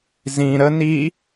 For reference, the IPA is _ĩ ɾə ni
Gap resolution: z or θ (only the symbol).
z